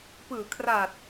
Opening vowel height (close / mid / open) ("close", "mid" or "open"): close